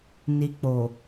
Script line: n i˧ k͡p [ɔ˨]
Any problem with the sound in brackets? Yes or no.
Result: yes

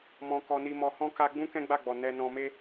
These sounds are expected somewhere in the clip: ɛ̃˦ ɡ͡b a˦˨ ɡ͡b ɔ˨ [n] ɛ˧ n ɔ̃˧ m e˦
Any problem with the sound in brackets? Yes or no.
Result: no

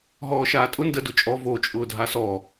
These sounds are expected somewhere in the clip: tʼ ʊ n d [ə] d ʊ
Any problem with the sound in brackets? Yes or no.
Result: no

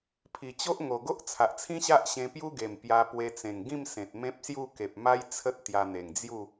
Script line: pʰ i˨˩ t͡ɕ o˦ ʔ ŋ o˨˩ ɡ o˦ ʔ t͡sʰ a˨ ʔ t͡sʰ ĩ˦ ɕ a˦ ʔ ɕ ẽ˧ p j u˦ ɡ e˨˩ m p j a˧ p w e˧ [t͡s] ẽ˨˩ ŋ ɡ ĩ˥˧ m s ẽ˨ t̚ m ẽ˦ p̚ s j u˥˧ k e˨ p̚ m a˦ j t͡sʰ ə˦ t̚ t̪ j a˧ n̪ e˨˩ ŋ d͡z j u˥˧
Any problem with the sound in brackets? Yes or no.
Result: no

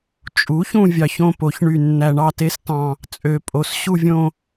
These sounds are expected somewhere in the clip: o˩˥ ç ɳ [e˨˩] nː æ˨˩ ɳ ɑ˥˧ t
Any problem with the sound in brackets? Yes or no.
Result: yes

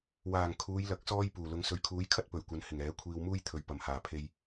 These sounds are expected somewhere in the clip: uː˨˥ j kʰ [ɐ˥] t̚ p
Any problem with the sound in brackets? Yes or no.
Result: no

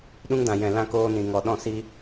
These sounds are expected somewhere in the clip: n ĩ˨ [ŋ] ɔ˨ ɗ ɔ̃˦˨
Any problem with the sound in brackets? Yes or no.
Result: no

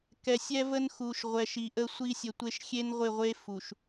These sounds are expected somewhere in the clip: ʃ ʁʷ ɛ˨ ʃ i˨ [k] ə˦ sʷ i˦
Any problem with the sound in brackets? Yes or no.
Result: yes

